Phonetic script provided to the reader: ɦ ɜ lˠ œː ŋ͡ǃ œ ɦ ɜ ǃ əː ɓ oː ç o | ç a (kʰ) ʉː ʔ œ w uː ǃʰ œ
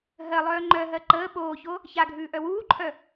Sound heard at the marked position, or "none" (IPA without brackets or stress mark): ɡʱ